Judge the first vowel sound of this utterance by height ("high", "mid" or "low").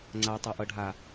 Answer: low